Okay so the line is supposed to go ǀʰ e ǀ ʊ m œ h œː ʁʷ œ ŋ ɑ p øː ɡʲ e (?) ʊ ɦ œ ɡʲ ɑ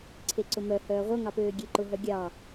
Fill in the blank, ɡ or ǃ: ǃ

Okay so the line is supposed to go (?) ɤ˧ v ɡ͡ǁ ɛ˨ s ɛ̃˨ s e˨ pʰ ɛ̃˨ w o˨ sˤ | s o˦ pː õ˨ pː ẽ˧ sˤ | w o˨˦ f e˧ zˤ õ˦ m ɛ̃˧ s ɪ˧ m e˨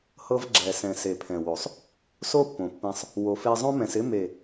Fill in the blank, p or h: h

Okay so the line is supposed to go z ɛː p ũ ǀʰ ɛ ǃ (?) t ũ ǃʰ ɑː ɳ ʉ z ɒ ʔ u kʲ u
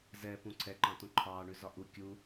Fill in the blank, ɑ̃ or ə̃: ɑ̃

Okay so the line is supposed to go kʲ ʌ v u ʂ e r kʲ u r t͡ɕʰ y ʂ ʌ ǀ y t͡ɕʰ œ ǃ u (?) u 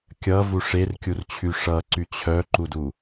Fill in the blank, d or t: d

